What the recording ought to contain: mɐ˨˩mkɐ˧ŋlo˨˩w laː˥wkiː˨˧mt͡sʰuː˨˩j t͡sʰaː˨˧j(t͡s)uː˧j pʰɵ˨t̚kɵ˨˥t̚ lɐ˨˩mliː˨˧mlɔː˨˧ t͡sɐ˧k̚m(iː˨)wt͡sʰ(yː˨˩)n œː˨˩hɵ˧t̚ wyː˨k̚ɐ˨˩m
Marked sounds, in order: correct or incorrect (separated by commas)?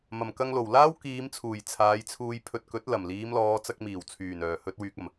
incorrect, incorrect, correct